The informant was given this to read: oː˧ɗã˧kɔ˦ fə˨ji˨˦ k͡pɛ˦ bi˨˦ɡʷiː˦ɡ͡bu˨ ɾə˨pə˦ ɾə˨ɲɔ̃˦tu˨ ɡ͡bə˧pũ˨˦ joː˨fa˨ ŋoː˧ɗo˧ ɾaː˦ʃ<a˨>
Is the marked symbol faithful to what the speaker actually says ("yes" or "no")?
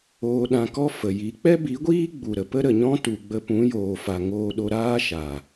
yes